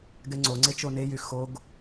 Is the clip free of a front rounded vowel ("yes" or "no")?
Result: no